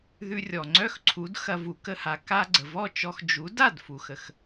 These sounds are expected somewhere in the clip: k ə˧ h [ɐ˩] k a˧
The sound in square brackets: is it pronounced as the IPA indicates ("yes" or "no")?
no